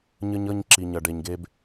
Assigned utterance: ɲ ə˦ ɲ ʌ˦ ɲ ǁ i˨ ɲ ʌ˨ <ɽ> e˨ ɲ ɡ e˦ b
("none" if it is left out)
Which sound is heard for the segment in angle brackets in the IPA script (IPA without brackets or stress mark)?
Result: ɖ